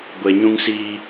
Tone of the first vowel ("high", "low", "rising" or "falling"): low